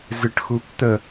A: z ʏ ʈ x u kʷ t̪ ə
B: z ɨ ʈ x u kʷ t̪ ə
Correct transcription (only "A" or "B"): B